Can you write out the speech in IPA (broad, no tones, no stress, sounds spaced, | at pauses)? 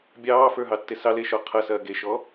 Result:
bʲ ɑː f ə˞ ɦ ɑ tː e s ɑ l e ʃ ɔ qʰ ɐ s ɐː ɡ e ʃ ɔ